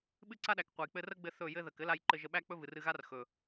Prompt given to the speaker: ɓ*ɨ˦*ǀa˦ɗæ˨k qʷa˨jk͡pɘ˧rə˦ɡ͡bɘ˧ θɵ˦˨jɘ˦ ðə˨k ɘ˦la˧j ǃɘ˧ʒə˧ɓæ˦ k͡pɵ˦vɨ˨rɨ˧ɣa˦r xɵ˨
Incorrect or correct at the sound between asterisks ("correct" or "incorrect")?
correct